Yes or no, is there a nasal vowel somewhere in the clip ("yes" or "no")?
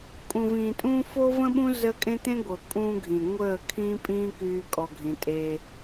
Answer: yes